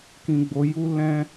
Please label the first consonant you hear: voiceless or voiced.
voiceless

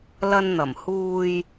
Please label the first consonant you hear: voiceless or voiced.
voiced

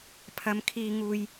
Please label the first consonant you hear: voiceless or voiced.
voiceless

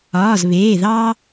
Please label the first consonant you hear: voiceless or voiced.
voiced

